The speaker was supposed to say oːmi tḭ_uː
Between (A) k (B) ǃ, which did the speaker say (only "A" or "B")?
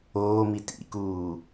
A